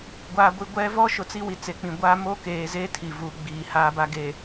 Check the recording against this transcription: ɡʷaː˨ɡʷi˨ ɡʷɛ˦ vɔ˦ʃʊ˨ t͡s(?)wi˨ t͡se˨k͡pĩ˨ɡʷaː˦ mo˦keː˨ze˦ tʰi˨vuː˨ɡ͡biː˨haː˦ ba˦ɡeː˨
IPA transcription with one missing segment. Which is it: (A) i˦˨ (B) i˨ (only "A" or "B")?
A